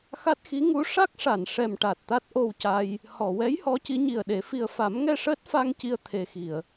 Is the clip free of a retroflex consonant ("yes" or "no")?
no